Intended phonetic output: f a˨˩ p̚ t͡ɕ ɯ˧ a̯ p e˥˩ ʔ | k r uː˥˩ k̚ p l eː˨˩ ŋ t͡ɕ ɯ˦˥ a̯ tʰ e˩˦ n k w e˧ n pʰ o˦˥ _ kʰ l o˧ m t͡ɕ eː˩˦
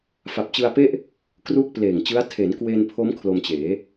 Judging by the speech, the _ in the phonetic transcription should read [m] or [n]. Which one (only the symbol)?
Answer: m